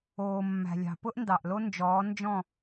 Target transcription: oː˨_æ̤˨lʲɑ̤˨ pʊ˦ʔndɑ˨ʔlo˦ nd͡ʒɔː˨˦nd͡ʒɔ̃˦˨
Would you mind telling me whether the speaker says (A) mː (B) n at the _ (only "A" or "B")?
A